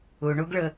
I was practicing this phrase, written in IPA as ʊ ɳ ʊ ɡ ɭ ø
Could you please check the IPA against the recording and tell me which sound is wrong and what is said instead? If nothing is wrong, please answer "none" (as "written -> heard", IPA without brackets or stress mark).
ø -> ə